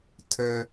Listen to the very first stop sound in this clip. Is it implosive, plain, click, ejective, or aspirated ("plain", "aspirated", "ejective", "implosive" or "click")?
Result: aspirated